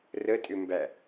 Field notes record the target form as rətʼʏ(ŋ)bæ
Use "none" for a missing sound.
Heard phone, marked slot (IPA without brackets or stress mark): m